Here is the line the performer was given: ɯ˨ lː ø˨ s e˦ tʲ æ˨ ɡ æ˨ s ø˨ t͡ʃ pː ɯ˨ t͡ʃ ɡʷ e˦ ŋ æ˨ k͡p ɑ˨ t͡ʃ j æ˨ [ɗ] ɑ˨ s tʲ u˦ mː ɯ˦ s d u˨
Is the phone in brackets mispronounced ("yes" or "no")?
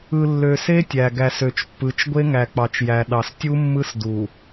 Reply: no